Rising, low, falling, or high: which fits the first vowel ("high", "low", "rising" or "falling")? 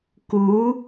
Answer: rising